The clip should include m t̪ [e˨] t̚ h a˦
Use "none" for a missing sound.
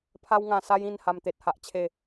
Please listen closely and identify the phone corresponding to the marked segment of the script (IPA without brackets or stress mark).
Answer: e˨